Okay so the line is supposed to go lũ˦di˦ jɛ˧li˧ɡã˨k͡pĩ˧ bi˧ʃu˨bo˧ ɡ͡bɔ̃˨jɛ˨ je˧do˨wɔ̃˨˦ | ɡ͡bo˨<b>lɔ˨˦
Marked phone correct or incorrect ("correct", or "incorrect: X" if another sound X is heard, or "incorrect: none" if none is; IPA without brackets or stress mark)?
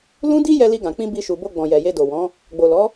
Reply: incorrect: none